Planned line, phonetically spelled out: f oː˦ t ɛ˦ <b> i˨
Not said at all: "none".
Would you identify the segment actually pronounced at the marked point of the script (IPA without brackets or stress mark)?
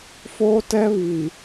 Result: β